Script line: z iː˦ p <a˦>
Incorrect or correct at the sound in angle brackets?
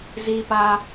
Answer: correct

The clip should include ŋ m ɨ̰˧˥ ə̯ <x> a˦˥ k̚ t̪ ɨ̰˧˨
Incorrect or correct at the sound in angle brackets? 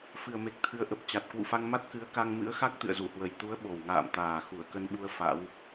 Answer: correct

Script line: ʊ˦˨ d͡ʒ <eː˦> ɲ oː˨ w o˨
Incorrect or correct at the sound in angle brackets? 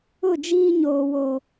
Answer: incorrect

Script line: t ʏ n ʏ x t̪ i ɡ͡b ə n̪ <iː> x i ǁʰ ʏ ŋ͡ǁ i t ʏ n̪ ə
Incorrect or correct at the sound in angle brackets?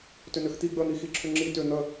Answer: incorrect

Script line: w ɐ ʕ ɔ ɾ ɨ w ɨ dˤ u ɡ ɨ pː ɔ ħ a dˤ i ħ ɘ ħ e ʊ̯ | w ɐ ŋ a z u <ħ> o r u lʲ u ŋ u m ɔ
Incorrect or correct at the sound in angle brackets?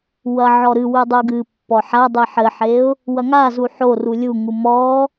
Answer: correct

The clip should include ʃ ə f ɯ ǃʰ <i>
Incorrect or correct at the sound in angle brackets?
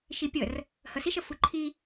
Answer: correct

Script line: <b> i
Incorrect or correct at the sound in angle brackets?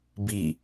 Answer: correct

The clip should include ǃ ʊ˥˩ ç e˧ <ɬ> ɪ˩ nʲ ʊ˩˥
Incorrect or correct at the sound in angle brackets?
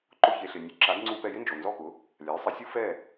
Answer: correct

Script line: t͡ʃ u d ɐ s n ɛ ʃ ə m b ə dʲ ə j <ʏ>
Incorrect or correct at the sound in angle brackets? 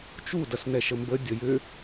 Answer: correct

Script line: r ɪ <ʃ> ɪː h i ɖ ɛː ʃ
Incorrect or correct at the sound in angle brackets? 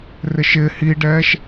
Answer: correct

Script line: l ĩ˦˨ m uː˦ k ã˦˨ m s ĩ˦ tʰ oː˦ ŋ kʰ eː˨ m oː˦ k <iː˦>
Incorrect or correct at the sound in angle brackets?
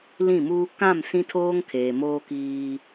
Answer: correct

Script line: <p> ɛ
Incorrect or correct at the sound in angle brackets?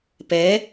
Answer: correct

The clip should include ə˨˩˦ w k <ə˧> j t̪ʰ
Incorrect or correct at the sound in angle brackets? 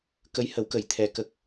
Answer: incorrect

